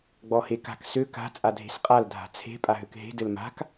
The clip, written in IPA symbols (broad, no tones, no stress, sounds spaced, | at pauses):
ɡ͡b ɔ h e k a̤ k s ø k a̤ t͡sʼ a dʱ e̤ s qʼ a l dʱ a̤ t͡sʰ e̤ pʼ a ɦ ø k ɦ e̤ d ɘ l m a̤ k